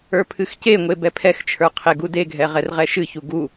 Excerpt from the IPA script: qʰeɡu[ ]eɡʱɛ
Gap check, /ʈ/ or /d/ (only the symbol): d